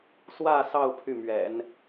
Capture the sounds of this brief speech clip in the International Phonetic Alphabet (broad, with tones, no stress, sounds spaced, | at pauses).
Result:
s w ä˥˧ s ɑ˥˧ ʊ̯ pʰ y˥˩ m ɥ ɛ̰˨˩˦ n